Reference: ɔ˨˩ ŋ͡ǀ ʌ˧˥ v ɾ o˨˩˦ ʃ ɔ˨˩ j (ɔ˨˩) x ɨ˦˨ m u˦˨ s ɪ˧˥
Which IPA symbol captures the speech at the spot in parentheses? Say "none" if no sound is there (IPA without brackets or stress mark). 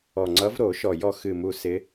ɔ˦˨